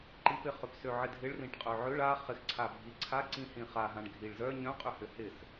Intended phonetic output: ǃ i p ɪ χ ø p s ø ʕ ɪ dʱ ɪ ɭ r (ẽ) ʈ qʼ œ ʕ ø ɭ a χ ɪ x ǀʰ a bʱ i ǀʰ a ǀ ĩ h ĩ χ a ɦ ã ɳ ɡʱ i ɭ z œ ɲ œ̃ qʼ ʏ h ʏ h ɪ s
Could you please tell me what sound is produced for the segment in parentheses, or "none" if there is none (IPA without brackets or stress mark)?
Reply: ĩ